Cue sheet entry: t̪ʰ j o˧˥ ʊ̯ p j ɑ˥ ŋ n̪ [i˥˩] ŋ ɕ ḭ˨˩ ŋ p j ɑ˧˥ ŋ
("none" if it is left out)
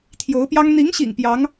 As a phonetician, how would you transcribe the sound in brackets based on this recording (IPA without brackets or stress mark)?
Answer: i˧˥